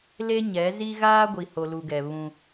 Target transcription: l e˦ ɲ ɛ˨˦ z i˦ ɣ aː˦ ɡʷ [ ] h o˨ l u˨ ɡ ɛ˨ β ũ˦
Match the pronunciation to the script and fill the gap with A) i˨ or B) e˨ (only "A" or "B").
A